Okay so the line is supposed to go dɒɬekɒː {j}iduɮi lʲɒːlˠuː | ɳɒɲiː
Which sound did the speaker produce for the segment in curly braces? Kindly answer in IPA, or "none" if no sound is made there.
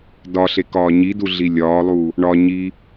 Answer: ɲ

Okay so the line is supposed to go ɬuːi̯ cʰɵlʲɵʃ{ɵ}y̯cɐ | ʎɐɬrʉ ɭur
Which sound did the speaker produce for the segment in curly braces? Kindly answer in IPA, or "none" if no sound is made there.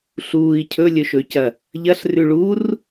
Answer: ɵ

